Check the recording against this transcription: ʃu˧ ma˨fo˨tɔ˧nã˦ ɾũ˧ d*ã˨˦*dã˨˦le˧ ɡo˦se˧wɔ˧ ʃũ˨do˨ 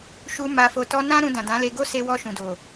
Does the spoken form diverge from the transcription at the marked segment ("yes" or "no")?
yes